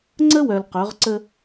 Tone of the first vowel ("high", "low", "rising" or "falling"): high